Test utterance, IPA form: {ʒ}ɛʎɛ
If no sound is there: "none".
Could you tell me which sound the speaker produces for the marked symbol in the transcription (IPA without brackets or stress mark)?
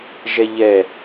ʒ